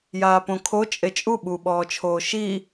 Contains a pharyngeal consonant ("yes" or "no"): no